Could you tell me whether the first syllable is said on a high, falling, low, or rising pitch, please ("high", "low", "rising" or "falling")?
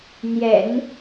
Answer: low